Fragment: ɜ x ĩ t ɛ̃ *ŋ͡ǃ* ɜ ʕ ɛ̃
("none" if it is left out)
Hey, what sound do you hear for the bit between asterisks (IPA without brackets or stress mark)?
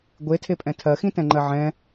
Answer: ŋ͡ǃ